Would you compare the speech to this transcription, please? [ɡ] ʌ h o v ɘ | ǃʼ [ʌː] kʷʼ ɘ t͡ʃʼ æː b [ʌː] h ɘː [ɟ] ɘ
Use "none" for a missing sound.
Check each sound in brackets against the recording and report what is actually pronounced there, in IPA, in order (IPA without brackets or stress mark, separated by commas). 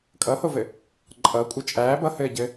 kʼ, ʌː, ʌ, ɟ